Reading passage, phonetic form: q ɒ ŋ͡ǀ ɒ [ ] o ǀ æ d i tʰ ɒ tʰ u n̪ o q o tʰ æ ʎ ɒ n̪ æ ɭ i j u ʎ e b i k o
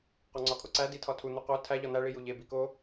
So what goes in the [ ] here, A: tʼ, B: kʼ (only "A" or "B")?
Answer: B